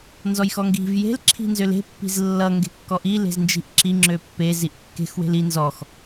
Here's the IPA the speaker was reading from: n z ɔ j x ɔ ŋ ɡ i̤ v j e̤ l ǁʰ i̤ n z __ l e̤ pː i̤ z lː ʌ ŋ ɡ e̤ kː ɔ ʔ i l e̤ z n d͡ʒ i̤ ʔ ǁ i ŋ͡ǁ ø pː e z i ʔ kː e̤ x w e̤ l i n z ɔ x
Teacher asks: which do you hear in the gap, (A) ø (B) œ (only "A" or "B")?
A